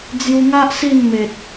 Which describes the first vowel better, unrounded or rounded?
rounded